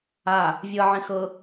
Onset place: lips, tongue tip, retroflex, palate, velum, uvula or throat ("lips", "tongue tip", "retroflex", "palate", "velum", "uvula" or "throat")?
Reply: lips